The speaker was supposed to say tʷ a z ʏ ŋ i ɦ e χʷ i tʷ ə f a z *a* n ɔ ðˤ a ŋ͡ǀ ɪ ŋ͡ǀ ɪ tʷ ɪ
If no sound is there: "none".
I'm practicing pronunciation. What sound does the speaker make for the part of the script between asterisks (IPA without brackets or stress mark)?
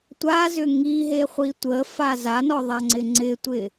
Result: a